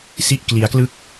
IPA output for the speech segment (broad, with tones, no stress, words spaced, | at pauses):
si˥˩ʔkli˦˥a̯klɯ˥˩k̚